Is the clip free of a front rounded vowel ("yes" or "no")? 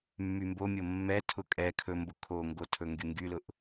no